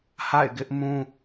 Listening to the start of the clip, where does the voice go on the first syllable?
falling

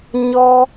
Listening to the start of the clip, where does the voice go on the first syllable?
high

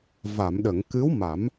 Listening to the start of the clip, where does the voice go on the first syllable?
low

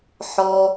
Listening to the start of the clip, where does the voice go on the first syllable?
high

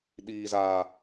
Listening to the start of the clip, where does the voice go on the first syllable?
low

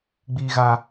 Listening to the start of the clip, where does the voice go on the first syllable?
low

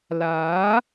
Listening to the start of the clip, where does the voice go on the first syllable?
rising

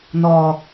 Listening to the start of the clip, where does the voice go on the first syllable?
low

